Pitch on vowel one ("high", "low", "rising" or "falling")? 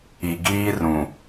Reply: low